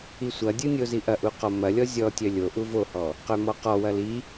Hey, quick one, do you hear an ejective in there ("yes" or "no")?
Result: no